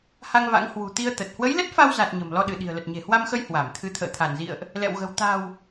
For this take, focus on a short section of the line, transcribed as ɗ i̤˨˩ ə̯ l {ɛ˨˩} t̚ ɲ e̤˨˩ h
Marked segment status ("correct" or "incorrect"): incorrect